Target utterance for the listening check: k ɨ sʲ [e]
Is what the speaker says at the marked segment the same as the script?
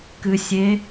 yes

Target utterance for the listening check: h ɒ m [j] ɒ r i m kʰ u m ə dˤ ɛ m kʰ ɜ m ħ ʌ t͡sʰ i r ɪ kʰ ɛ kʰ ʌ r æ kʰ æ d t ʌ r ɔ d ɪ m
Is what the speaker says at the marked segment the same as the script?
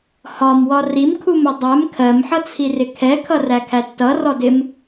no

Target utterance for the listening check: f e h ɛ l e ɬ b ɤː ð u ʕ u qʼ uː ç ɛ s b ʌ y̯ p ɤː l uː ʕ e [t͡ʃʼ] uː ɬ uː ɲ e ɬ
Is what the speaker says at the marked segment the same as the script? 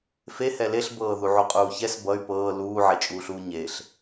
yes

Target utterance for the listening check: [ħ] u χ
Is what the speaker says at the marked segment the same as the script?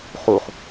no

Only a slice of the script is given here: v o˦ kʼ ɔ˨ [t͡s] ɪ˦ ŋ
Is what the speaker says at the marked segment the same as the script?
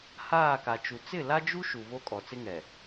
yes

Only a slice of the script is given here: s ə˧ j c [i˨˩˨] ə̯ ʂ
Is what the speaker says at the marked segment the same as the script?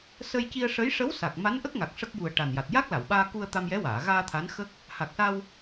no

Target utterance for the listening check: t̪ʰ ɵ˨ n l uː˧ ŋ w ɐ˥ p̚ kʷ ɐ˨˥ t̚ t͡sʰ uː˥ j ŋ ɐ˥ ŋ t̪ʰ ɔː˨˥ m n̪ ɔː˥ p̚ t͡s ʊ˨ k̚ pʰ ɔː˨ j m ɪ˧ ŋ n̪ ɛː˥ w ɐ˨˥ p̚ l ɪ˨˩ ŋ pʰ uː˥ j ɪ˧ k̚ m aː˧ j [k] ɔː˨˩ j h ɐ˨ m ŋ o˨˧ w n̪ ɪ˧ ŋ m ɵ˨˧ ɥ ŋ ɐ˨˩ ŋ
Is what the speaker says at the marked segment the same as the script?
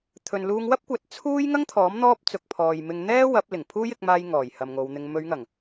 no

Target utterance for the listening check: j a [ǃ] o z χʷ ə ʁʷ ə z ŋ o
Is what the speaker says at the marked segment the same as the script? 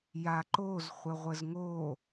yes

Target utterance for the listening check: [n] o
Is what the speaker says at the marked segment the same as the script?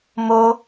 no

